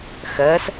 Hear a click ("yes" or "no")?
no